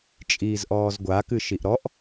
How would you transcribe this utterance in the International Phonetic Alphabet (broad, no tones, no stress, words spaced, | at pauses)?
t͡ʃʼiːzʔɔːzɡʷa kɨʃiʔɾɔʔ